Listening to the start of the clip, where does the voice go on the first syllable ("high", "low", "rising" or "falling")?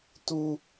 high